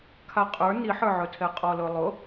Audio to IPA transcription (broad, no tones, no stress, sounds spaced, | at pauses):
kʰ a qʼ ə˞ n i ħ ə˞ ʕ ɵ tʰ ɛ qʼ ɔ l ɵ lˠ ʊ